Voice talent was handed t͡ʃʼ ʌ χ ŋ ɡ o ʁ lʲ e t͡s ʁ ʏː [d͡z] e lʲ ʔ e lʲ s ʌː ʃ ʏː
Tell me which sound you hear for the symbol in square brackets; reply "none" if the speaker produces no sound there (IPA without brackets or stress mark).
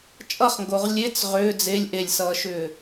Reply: d͡z